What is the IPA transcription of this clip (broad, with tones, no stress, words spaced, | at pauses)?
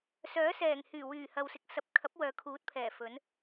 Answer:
sœː˨˥sɛː˨˩ŋhyː˨˩ wyː˨˩ hɐ˨wsɪ˨k̚sɐ˨˥p̚kʰɐ˨˥p̚ wœː˨kʰuː˨˥t̚pʰɛː˨˩ fɵ˨˥n